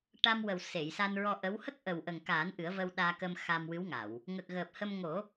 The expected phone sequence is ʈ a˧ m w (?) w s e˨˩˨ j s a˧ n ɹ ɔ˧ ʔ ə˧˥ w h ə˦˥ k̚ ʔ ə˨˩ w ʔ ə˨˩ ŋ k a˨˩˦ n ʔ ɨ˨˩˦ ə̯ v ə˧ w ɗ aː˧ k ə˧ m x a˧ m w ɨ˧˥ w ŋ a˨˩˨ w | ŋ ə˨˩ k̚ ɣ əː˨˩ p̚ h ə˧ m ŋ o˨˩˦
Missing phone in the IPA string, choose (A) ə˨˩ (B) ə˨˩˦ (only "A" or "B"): A